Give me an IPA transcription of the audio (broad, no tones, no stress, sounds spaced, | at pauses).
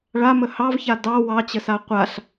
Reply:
ɭ a m ə h ɑ v ç a d ɑ w ɑ t͡ɕ ə s a qʷ a ɬ